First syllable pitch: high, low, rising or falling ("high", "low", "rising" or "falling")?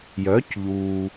rising